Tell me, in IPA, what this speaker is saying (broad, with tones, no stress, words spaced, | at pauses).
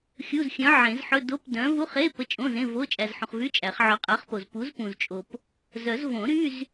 xʲu˧˥˧zxʲœ̃˨˥ʕẽ˨˩˦zħɵ˧˥˧ do˧˥˧pdœ̃˨˥ vu˧˥˧χe˧˥˧ pə˧˥˧t͡ʃʼõ˧˥˧zẽ˧˥˧ vo˧˥˧ t͡ʃʼæ˨zħũ˨χvy˧˥˧ t͡ʃʼæ˨˩˦χ ʕœ˨˥qʼa˨˥χpo˨z pu˨˥zpũ˨zt͡ʃʼo˨p | zœ˨˩˦z võ˨˩˦ɾy˧˥˧z